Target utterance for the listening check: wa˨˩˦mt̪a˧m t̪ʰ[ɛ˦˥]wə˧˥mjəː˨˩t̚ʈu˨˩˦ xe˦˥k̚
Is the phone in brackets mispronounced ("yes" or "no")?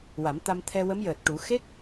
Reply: yes